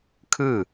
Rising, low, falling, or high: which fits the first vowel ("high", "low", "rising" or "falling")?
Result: falling